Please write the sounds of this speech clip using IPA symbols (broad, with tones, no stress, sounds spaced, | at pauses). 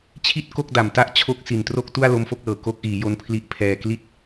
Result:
t͡ɕʰ i˥˩ t̚ k o˥˩ k̚ d a˨˩ m t a˥˩ ʔ t͡ɕʰ o˦˥ k̚ s i˨˩ n t r o˥˩ k̚ t u˥˩ a̯ l o˦˥ m f o˦˥ k̚ l ɤː˨˩ k o˦˥ k̚ ʔ iː˩˦ j o˦˥ n pʰ l i˦˥ ʔ pʰ ɛː˧ k l i˥˩ t̚